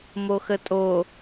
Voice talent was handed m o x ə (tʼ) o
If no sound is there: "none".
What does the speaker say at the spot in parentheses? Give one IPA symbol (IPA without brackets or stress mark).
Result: tʼ